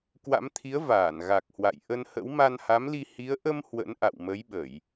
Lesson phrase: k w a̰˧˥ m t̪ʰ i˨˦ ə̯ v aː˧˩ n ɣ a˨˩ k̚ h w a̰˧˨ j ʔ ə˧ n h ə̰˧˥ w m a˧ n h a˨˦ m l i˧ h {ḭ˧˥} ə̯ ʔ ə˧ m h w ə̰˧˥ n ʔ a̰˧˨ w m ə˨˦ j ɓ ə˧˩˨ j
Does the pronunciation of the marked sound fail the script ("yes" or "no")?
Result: yes